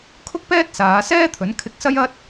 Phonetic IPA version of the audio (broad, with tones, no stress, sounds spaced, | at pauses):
kʰ ʊ˥ k̚ p ɛː˥ t̚ s aː˨˧ s ɛː˥ t̪ʰ ɵ˨˥ n kʰ ɪ˧ k̚ s ɐ˥ j ɐ˥ t̚